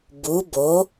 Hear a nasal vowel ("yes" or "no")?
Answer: no